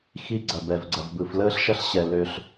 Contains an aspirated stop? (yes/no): no